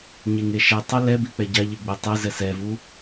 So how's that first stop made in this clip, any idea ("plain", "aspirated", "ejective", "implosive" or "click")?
plain